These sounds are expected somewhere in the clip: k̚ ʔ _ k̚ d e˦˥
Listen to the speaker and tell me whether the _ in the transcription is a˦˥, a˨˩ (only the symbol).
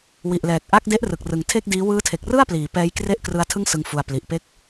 a˦˥